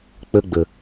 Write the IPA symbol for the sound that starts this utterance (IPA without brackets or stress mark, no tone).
k͡p